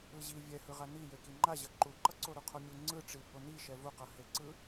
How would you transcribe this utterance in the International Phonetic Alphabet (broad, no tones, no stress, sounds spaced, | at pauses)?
ɯ ʑ i vʲ ɛ h ɯ ʁ a n i j e k i ŋ͡ǃ a ʑ ʌ ǃ u ǃ ʌ ǀ o ɾ u qʰ o mʲ u ŋ͡ǀ ɯ ʈ͡ʂ i b o n i ʃ ɛ v u q ʌ h e ǀ ɯ